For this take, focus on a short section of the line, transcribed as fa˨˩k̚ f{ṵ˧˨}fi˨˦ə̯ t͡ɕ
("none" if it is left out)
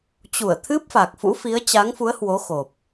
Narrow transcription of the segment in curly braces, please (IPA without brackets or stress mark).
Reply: ṵ˧˥